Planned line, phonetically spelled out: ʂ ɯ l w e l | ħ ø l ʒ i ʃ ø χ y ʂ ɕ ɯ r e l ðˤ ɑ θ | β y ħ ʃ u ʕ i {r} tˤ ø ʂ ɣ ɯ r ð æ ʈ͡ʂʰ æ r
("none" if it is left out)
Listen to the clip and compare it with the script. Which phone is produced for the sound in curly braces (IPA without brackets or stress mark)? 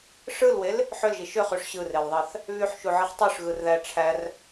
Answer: χ